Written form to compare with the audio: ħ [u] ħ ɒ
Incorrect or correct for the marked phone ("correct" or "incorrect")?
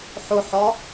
incorrect